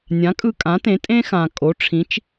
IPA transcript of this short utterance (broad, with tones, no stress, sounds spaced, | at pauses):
nʲ ã˩˥ kʼ ɯ˧ kʼ ã˩˥ t ẽ˩˥ tʼ ẽ˥ x ã˩ kʼ o˩˥ ʈ͡ʂʰ ĩ˩˥ t͡ʃ